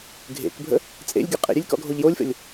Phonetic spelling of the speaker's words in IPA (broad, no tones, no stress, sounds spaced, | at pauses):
ɡʱ ḛ k bʱ ə̰ | t͡sʼ ḛ lʲ ɡʲ ə qʼ ḛ ɾʲ e lʲ k ɔ̰ ɡʱ o ʎ j o lʲ f ə̰ lʲ